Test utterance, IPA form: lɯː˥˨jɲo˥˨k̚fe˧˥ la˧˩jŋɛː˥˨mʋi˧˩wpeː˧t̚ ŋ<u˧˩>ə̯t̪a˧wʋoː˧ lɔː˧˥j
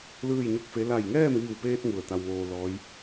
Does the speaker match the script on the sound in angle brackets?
yes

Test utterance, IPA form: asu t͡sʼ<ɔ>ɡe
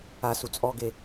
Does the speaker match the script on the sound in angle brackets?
yes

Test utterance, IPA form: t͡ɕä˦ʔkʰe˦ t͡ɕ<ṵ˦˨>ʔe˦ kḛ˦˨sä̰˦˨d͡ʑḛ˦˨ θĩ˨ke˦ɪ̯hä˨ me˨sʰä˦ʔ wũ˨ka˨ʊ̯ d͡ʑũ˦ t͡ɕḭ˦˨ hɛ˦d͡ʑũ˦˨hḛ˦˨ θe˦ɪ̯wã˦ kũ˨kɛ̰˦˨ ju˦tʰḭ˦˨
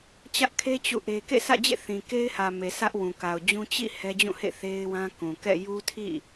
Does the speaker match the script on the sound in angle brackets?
yes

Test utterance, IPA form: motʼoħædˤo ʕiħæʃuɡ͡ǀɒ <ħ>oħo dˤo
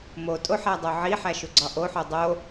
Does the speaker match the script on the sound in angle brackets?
no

